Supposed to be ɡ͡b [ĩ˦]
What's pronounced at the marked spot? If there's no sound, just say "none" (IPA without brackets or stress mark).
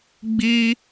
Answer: i˦